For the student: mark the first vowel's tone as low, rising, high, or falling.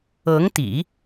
rising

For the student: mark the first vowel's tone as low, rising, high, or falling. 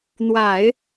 low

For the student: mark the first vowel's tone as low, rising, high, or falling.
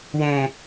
low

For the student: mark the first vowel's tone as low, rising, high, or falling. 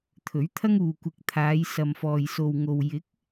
rising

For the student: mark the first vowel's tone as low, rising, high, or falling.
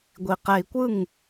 low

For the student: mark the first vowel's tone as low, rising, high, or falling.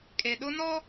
low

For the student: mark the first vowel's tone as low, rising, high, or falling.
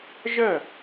falling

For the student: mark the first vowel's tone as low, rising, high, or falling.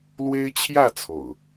high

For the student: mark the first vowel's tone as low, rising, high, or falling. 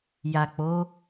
low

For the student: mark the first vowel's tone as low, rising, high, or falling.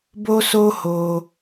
high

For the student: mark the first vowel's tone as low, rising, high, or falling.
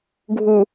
low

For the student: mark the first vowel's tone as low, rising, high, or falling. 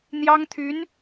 high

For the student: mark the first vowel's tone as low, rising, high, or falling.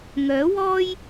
rising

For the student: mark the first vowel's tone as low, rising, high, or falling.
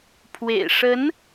low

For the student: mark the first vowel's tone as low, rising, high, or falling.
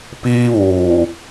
high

